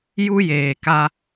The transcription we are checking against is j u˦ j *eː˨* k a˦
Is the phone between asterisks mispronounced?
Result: no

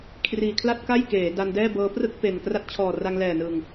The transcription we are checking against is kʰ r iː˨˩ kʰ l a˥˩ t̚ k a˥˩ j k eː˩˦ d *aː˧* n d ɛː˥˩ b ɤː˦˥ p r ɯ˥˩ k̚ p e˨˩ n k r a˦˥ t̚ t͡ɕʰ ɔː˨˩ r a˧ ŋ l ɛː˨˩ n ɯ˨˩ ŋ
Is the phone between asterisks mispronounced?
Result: yes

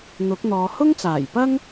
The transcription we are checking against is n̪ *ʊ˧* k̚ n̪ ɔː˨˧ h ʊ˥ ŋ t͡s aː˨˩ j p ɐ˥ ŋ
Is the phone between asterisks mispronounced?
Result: yes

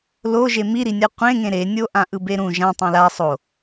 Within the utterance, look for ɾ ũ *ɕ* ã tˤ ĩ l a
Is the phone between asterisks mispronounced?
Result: yes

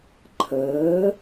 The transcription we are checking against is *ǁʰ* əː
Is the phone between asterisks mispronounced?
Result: yes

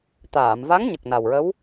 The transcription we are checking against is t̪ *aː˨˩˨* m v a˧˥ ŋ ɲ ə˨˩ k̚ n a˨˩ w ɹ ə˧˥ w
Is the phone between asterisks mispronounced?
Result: no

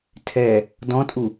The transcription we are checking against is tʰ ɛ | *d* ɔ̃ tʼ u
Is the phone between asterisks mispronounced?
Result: no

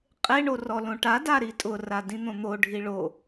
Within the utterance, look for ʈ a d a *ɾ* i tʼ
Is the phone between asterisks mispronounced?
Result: no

